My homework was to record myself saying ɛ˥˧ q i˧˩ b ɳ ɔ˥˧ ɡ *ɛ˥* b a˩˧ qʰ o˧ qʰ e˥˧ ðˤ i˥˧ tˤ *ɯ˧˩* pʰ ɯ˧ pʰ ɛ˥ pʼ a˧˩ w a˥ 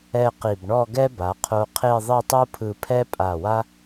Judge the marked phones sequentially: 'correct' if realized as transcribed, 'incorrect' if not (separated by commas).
correct, incorrect